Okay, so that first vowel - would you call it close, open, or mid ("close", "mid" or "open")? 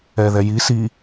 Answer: mid